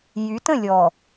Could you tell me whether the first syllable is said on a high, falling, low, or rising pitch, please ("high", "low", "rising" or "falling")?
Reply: rising